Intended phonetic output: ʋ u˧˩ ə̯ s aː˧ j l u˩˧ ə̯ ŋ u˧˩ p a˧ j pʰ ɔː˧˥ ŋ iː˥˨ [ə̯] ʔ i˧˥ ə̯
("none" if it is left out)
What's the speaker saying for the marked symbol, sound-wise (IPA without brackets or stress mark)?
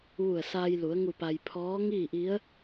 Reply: none